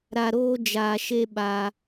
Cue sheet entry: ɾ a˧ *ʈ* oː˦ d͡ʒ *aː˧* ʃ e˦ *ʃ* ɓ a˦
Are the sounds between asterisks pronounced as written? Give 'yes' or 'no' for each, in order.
no, yes, no

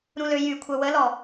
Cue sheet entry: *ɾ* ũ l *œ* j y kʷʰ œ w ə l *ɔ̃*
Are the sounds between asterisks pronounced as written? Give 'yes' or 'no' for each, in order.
yes, no, no

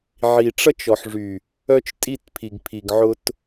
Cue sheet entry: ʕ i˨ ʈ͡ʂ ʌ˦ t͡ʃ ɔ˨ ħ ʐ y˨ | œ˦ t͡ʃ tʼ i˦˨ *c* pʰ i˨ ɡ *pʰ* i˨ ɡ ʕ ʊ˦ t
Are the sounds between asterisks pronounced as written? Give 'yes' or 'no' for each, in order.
no, yes

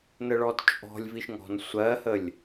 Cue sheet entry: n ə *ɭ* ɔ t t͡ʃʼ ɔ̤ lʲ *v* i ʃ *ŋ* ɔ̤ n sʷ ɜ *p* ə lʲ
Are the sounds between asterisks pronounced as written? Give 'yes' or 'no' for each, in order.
yes, yes, yes, no

